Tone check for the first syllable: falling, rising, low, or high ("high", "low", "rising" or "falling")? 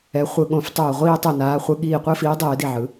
rising